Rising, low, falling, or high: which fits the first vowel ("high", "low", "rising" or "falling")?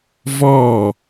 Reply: falling